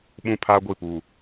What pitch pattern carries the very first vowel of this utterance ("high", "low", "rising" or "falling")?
low